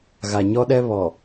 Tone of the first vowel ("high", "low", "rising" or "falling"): low